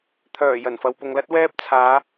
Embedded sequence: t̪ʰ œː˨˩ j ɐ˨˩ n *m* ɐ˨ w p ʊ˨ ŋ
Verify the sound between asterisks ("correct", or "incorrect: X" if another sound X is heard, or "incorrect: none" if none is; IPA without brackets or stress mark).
incorrect: f